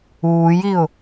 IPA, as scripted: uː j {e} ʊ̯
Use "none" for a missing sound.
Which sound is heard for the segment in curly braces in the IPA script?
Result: i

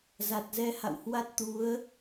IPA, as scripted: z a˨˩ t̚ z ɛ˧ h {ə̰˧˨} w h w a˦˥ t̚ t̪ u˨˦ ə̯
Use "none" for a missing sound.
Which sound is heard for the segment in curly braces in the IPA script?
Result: a̰˧˨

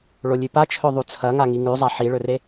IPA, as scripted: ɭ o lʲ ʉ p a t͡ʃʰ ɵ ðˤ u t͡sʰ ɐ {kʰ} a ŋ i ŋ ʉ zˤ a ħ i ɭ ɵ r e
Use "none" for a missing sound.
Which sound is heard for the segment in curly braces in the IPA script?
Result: ŋ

